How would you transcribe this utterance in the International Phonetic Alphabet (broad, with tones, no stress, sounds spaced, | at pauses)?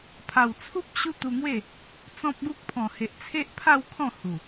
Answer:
pʰ a˨˩ w t͡sʰ u˦ p̚ ɕ u˦ t̪ u˧ ŋ w e˥˧ | t͡s ɔ̃˦ p̚ ɡ u˦ k̚ pʰ ɔ̃˨˩ h e˨ ʔ t͡sʰ e˦ ʔ pʰ a˥˧ w kʰ ɔ̃˥˧ h u˨˩